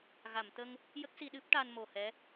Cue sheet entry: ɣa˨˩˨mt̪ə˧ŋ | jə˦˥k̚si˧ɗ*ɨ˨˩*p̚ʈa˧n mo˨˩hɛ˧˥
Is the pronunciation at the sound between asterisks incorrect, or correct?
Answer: incorrect